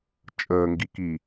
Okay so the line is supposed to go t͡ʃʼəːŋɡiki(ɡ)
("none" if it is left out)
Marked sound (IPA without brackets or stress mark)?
none